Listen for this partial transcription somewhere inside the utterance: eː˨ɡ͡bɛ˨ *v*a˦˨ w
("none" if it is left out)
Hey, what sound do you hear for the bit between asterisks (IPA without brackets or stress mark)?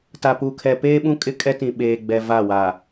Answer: v